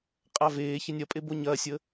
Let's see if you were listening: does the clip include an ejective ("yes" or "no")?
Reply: yes